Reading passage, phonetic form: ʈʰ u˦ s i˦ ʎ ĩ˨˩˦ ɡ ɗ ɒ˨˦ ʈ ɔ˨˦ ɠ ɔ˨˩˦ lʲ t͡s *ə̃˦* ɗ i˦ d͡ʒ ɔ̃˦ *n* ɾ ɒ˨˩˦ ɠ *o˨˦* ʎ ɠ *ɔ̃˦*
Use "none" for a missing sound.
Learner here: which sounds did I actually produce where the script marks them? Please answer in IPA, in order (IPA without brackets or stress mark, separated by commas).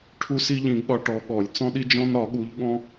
ɔ̃˦, n, u˨˦, ɔ̃˦